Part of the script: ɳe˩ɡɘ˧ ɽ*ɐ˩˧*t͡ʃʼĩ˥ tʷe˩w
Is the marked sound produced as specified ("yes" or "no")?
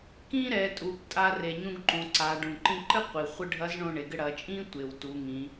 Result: yes